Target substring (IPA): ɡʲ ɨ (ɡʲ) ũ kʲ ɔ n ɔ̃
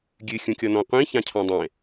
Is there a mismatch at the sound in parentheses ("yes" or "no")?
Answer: yes